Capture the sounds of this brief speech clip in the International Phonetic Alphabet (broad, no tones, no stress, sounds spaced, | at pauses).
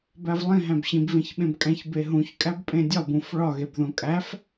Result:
b æ v lˠ ĩ ɦ æ̃ b ɕ ĩ b v ẽ ç ɓ ẽ b kʼ æ̃ ç b e ɦ ũ ç kʼ æ b pʼ ẽ dʲ ɒ b ũ f ɭ ɒ ɣ e b ð õ kʼ æ f